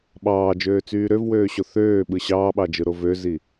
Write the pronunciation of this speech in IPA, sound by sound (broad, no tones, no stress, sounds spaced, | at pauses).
ɓ ɑː d͡ʒ øː t͡s yː ɾ ø v w øː ɕ o θ øː ɓ ɯ ɕ ɑː ɓ ɑ d͡ʒ ɯ ɾ o v ø z i